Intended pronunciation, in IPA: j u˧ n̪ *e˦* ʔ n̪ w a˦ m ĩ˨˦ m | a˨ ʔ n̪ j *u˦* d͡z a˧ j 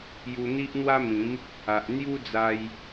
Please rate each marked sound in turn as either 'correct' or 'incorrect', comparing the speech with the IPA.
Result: incorrect, correct

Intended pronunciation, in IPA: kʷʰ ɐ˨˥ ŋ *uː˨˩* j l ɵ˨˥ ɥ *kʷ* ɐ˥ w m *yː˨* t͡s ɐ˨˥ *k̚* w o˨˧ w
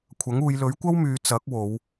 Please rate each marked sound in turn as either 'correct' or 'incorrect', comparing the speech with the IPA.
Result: incorrect, correct, incorrect, correct

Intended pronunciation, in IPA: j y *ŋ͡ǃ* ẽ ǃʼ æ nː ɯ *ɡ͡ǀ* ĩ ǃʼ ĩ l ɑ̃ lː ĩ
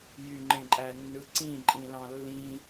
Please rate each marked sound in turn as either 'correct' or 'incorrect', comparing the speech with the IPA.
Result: correct, incorrect

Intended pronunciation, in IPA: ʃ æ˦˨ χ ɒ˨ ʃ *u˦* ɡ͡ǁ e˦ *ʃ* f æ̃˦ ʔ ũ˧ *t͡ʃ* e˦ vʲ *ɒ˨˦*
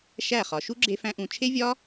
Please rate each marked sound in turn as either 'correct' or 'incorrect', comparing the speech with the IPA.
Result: correct, incorrect, incorrect, incorrect

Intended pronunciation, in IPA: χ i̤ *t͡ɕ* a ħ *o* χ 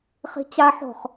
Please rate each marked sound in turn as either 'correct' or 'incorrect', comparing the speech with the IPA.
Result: correct, incorrect

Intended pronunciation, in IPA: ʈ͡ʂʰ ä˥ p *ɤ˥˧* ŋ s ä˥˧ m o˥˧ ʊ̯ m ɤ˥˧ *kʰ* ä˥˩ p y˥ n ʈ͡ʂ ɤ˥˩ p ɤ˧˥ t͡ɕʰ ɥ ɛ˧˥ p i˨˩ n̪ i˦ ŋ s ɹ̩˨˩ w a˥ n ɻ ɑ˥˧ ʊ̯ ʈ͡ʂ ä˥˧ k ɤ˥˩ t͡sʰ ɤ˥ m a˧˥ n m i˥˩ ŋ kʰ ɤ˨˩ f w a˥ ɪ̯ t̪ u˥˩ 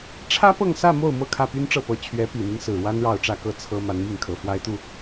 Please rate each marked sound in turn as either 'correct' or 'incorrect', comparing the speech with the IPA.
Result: correct, correct

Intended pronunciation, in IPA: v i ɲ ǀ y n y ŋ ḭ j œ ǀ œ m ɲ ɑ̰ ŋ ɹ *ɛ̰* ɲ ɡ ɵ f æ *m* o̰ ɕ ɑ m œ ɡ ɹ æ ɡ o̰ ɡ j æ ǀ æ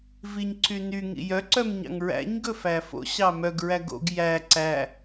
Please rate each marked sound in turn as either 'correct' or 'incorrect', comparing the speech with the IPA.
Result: incorrect, incorrect

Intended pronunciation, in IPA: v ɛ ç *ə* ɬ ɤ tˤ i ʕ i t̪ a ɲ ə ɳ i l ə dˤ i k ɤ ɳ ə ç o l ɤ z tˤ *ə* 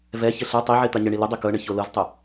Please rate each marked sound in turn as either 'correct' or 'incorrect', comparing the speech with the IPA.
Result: correct, correct

